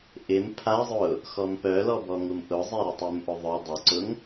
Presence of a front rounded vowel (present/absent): present